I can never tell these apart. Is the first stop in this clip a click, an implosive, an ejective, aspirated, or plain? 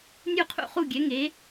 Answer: aspirated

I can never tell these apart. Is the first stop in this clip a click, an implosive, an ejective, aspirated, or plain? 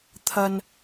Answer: aspirated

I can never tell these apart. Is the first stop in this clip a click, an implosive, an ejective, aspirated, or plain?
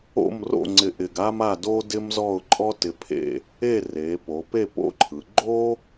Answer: click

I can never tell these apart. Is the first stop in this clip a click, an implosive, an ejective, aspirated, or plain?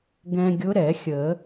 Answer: plain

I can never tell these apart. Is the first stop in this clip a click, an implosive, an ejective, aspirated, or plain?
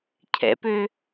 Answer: aspirated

